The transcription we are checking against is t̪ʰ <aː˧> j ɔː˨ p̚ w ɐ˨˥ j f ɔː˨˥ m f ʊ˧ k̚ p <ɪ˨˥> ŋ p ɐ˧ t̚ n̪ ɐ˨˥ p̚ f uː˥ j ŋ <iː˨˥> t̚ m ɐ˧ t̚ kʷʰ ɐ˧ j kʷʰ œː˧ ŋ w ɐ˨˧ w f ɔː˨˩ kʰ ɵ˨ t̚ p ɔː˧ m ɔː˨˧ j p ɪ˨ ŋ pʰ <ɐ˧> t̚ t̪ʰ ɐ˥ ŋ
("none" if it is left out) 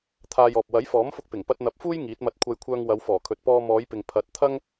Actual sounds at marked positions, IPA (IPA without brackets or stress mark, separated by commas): aː˧, ɪ˨˩, iː˨˥, ɐ˨˥